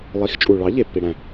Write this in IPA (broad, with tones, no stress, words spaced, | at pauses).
lˠi˨˥xt͡ʃʼu˨ ɭɑ˨˥ʎe˨pːi˨ ɽæ̃˨